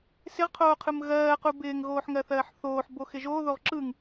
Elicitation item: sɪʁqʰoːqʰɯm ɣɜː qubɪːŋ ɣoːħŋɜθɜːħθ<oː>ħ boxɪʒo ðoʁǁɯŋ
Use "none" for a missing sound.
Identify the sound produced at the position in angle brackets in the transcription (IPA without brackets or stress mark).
oː